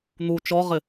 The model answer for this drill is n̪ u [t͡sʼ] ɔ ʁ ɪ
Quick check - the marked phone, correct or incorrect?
incorrect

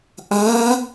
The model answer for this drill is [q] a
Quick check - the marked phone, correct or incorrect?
incorrect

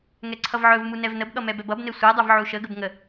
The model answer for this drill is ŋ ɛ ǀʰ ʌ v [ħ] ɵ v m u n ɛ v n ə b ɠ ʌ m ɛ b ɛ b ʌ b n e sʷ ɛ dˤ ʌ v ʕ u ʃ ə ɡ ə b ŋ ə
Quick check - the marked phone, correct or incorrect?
incorrect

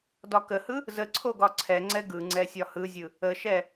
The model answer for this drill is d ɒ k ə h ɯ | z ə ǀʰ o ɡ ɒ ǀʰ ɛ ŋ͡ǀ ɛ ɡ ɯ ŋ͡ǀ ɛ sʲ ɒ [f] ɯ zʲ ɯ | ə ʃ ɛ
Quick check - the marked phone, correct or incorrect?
incorrect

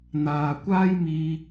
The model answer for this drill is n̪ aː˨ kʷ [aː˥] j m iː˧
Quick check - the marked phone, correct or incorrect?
correct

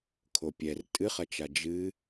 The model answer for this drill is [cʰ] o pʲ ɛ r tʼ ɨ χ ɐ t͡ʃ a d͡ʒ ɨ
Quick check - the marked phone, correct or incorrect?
incorrect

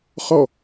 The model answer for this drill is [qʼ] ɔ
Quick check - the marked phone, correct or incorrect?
incorrect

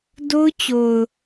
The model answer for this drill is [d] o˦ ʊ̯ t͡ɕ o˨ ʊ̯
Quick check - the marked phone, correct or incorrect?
correct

